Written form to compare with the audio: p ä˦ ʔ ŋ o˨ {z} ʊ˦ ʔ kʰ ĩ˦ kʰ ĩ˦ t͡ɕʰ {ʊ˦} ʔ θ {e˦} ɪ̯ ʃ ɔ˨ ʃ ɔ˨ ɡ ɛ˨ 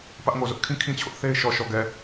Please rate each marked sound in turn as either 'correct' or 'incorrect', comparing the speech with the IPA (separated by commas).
correct, correct, correct